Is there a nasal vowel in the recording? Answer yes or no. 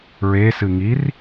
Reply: no